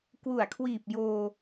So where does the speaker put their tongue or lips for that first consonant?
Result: velum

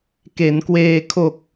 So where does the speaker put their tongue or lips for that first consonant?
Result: velum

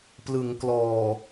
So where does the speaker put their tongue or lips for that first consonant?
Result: lips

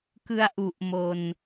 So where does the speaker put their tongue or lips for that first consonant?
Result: velum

